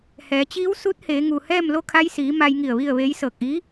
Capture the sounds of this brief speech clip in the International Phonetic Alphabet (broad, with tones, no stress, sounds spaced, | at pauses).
h ɛː˩˧ t͡ɕ iː˧˥ w s u˧˥ t̚ h eː˩˧ ŋ u˩ h ɛː˥˨ m l o˥˨ kʰ a˧ j s iː˩˧ m a˧ j ŋ i˧˩ ə̯ ʋ i˥˨ ə̯ ʋ e˧˥ j s ɤː˧˩ k̚ ʔ i˧˥